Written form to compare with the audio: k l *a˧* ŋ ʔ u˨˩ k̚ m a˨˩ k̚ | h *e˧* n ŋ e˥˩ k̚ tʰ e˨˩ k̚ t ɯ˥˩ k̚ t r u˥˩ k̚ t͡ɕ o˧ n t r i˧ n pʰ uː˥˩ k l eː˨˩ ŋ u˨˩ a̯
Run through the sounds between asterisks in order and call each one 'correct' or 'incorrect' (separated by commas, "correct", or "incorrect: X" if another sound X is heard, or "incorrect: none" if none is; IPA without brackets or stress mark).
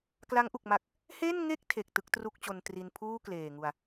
incorrect: a˦˥, incorrect: e˥˩